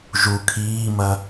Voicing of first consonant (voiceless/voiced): voiced